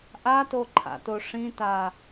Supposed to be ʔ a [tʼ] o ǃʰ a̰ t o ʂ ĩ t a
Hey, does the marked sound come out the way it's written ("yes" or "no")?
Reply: no